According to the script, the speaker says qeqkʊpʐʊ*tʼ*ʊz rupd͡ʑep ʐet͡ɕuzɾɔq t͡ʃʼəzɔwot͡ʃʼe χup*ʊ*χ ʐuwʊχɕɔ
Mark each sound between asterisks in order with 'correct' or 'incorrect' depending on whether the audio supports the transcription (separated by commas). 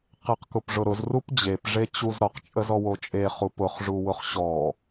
incorrect, correct